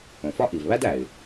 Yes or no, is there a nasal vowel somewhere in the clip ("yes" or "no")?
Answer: yes